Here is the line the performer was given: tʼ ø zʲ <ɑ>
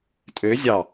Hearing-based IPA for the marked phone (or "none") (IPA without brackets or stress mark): ɑ